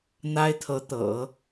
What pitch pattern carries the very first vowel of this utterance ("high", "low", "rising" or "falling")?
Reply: high